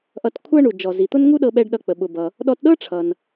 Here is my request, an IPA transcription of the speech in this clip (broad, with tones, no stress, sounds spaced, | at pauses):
ʔ ʌ˧ t kʷʰ ɤ˥ ɳ u˩ d͡ʒ ɔ˩ z i˩ t̪ ʊ˥ n ŋ u˥ ɗ ɤ˧ ɓ ɛ˧ ɖ ɗ ʌ˧ k͡p ə˩ ɓ ʊ˩ b ʌ˩ | ɗ ɔ˧ t ɗ ɤ˥ ʈ͡ʂʰ ʌ˩ n